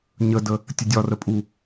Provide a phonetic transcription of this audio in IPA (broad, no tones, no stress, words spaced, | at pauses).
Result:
ɲədə | tʲədʲɒrə pʼu